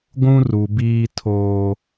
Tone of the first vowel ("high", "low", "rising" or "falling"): high